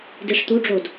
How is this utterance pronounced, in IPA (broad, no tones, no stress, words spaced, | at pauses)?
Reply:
diʂt̪uɖ͡ʐod